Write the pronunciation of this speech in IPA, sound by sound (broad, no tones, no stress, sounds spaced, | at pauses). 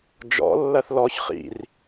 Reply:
d͡ʒ ɔ̰ lː ɐ θ l ɔ ç χ ḭ r